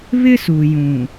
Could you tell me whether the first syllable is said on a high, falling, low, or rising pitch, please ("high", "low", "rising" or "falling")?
high